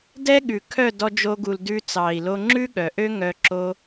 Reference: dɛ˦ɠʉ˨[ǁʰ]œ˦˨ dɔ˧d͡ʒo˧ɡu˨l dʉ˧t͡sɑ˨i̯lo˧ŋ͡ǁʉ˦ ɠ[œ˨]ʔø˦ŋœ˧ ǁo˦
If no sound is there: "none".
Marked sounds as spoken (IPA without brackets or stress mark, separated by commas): kʰ, œ˨